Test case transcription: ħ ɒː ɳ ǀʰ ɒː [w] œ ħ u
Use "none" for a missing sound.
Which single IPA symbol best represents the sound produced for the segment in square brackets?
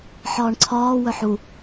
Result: w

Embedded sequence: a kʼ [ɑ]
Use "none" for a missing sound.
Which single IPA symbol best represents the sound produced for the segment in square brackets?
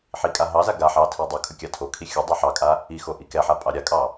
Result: ɑ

